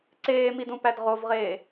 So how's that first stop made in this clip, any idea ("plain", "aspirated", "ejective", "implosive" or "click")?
click